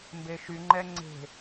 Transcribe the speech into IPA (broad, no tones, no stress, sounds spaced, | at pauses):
m b e ʃ y ŋ͡ǃ ɛ ŋ͡ǀ e̤